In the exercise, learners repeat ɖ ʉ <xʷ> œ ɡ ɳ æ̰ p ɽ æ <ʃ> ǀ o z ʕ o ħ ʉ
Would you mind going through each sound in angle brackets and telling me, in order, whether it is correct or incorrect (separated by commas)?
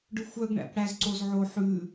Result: correct, incorrect